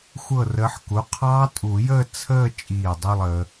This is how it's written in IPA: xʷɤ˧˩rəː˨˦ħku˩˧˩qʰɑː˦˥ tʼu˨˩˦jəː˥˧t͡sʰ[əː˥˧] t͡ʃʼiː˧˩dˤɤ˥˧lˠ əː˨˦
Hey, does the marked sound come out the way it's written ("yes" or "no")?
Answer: yes